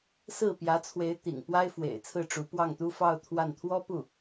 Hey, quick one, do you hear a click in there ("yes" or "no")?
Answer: no